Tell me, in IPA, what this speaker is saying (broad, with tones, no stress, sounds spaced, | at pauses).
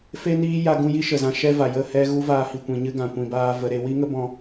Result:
f e˦ n iː˦ j a˧ ɡ ũ˧ j i˦ ʃ ə˨ z ã˧ ʃ ɛ˦ v a˨ j ə˦˨ h ɛ˦ ɣ u˦ v aː˧ h i˨ kʷ ĩ˨ ɲ ɨ˦ ɡ ã˨ kʷ ĩ˧ b aː˦ v ə˧ ɾ e˧ w i˦ ŋ ə˦ b ɔ̃˧